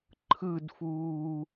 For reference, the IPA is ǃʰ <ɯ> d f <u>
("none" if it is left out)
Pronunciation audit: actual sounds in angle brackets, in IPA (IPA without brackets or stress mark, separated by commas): ɯ, uː